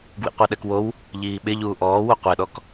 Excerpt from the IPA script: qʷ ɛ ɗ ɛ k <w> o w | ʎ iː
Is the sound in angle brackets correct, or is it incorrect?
correct